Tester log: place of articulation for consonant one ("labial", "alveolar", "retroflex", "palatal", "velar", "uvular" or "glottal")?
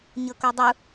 palatal